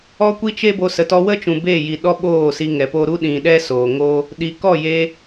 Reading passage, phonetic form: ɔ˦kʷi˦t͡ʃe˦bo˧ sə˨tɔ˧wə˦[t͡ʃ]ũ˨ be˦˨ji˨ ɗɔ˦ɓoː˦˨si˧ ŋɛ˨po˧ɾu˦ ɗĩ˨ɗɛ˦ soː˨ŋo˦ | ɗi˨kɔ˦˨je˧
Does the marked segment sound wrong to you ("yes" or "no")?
no